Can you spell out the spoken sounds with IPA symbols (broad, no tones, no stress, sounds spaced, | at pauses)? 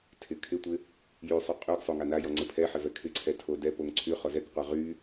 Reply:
tʰ ɪ kʰ ɪ tʷ ɪ | j y sˤ y qʼ y ɡ sˤ o ŋ a n a j ɔ ŋ͡ǀ ɪ pʰ ɛ ħ ɪ v ɛ kʰ ɪ ǀʰ ɛ tʰ o d ɛ p o ŋ ǀʰ y χ ɔ z ɛ k qʷ a ʁ y